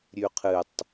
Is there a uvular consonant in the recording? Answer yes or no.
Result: yes